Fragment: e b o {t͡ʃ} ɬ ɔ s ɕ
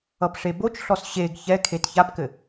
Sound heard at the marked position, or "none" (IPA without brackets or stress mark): t͡ʃ